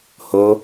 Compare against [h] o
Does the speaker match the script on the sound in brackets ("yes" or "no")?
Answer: yes